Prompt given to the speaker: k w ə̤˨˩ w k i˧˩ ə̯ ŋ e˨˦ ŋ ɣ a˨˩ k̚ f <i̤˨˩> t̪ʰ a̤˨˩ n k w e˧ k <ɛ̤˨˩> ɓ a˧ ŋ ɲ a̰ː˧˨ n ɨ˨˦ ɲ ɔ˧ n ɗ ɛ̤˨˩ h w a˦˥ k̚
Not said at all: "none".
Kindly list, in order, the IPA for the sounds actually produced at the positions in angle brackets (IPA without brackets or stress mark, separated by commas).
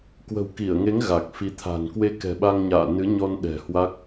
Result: i˨˦, ɛ̤˨˩